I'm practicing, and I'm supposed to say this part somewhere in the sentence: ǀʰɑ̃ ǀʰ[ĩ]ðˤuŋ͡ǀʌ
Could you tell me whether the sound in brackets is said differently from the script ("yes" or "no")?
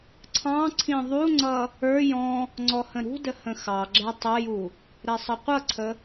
no